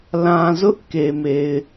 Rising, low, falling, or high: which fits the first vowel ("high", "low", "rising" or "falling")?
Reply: low